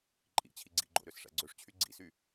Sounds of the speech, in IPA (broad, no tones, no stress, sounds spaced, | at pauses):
ǃʼ ḭ t͡ɕʰ i ɡ͡ǀ ḭ ɡ͡ǃ o̰ ɾ ø s ʂ æ̰ ɡ͡ǀ ø ʂ t͡ɕʰ y ɡ͡ǀ ḭ s y